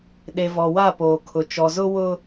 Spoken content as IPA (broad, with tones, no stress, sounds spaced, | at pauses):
ɗ e˨ v ɔ˨ w a˦˨ p oː˨ kʰ ʊ˨ t͡ʃ ɔ˨ z ʊ˦ w ʊ˦